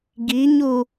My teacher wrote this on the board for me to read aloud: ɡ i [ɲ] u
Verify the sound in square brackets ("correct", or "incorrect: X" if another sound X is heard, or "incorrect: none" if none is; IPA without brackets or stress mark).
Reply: correct